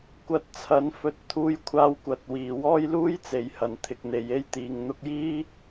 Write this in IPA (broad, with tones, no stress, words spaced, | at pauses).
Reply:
kʷɐ˧t̚t͡sʰɐ˨˥n fɵ˧t̚t̪ʰuː˧jkʷʰaː˧wkʷɐ˨˥t̚ wiː˨wɔː˥jluː˥j t͡se˨jhɐ˨n t̪ʰɪ˧k̚n̪e˨˧j e˧jt̪iː˨ŋn̪ʊ˧k̚jiː˥